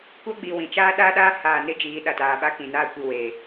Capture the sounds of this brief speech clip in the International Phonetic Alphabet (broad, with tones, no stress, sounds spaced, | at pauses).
kʷ a˦ ɡ͡b i˨ w ĩ˨ t͡ʃ aː˦ ɗ a˦ ɗ aː˦ h aː˨ n ɪ˦ d͡ʒ iː˨˦ ɗ a˨ t aː˨ ɓ a˦ k ĩ˨ n aː˦ kʷ i˨ w eː˨